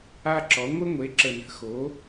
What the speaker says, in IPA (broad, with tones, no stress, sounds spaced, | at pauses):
a˦ ǁ ɔ˩˥ ŋʷ ɘ˦ ŋʷ e˩˥ ǁ ə˨˩ n ə̤˩˥ x o˩˥